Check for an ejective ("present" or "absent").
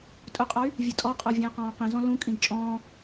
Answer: present